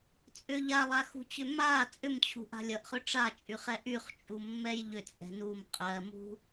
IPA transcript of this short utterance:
t͡sʼʏʎ alˠaxṳt͡ɕʏ ma t͡sʼʏmt͡ɕʰṳʔa̤ lʲʌʔχʏ ʈ͡ʂat͡ʃʼyχɛ ʔyχt͡ʃʼumːɛj ʎʏt͡sʼɛ̤ num qʼɜmṳ

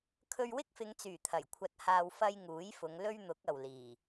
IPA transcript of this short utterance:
kʰɵ˧ɥwɪ˥k̚fɪ˨˧ŋt͡syː˨˩ t̪ʰɐ˨˩jkʷʰɐ˧t̚haː˧w fɐ˥j ŋuː˨˥jfʊ˨˧ŋ lɵ˥ɥn̪ʊ˨˥k̚ ɐ˨wliː˨˩

